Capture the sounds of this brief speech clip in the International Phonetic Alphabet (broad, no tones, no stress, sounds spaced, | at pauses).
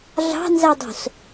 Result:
ɮ ɑ̤ n z æ dˤ o̤ s